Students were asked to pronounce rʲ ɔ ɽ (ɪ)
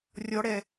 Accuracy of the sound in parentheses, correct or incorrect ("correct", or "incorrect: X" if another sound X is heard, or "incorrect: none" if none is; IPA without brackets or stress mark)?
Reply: incorrect: ɛ